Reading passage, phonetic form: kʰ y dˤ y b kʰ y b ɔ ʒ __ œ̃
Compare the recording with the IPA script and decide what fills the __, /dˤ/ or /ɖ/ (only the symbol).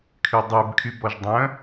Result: dˤ